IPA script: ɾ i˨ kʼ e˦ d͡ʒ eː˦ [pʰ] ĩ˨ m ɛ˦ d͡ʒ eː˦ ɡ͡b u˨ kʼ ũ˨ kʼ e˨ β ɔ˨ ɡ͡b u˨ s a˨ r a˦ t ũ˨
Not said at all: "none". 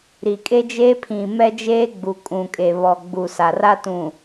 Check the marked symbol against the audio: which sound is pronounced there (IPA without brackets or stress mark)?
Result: pʰ